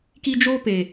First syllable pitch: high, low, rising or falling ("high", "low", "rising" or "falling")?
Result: high